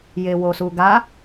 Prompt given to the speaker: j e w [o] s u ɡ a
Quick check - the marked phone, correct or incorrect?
correct